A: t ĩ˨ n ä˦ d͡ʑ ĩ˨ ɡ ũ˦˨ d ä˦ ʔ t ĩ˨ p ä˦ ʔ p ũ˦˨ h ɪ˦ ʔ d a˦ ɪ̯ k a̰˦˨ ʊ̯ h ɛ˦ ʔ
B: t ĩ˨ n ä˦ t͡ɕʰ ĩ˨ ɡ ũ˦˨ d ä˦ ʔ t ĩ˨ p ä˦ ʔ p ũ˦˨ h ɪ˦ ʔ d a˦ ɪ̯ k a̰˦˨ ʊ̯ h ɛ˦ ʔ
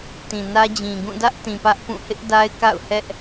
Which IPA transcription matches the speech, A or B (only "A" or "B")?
A